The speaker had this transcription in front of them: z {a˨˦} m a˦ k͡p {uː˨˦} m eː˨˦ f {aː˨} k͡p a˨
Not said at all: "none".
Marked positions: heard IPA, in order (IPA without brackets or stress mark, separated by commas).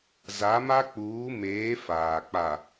a˨˦, uː˨˦, aː˨